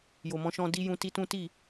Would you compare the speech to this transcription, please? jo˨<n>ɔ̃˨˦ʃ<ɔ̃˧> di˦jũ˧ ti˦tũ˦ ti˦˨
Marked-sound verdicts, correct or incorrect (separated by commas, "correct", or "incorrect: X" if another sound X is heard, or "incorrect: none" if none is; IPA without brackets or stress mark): incorrect: m, correct